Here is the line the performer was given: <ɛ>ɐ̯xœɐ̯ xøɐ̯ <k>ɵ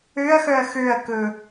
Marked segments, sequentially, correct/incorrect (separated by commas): incorrect, correct